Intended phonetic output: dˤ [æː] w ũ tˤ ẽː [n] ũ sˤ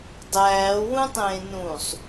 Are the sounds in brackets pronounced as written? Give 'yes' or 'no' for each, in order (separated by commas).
yes, yes